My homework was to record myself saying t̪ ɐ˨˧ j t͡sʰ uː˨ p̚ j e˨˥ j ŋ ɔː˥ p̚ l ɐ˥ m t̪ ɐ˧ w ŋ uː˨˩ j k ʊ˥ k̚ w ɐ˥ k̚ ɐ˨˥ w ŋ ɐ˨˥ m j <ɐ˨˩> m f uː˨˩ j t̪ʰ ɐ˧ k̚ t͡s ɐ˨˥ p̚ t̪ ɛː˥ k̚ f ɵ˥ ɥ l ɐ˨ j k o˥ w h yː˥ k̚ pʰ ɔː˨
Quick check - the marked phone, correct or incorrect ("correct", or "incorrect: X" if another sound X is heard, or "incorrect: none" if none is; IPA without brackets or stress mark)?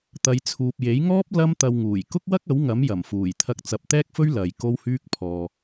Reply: correct